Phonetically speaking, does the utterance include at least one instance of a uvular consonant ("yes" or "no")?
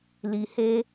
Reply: no